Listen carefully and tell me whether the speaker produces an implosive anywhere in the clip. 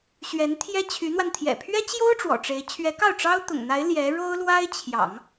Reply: no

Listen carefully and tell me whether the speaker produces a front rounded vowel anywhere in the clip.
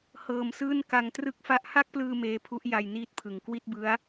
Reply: no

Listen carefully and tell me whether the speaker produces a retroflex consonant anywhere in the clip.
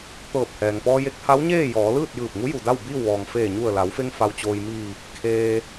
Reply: no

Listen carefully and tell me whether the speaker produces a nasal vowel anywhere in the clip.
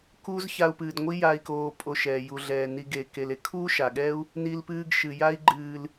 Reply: no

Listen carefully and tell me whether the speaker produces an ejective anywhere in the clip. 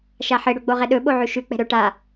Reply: no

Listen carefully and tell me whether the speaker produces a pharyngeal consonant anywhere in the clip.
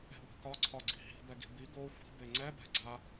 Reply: no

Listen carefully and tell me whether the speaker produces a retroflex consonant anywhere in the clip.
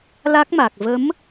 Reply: no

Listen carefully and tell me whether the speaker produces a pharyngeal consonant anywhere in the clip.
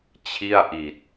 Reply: no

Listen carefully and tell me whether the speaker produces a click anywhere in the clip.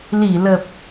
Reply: no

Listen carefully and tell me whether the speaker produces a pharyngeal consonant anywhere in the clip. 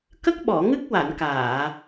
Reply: no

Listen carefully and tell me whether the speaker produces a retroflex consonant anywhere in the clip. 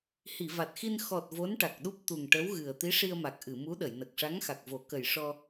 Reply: yes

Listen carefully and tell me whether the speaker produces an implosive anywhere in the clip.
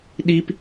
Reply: yes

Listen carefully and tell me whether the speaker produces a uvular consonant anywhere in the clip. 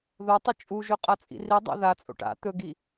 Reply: yes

